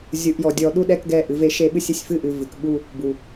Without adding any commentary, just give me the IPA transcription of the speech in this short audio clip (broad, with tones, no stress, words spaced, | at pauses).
zʲu˨ʔjɔ˨ dʲɔ˨ɗu˦ɗɛ˦k ɡɛ˦˨ʔɨ˨ ve˦ʃe˦ɓɨ˦sʲ ɨ˨sʲfɨ˦ʔɨ˨ vɨ˨kɓu˦ | bu˨